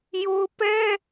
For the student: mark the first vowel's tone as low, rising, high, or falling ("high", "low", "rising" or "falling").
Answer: high